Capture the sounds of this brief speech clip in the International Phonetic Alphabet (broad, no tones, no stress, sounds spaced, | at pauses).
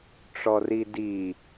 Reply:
ʈ͡ʂ ɔ r i d i